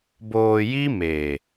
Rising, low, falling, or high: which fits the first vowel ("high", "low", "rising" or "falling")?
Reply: low